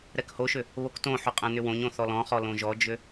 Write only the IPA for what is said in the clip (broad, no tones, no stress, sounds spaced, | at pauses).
ɾ ɛ k h o ʃ ʏ | β o k t õ ħ o qʼ ɛ̃ n ʏ w õ ɲ õ θ ɔ l ɔ̃ χ ɔ l õ ʒ ɔ d͡ʒ ʏ